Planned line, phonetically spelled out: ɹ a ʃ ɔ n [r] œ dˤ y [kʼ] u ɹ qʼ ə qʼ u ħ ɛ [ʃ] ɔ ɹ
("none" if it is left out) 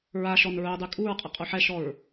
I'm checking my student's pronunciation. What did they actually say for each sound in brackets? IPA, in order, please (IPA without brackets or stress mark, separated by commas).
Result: ɹ, kʼ, ʃ